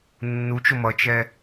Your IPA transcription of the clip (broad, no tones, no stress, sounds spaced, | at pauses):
nː u t͡ʃ o m ʌ t͡ʃ ɛ